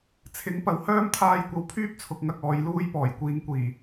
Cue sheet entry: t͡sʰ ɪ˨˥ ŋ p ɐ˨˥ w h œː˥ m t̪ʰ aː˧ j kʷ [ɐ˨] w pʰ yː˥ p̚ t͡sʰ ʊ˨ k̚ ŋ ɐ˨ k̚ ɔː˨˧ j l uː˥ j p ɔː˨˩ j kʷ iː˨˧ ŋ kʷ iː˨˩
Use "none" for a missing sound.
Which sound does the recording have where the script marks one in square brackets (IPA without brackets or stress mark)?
ɐ˨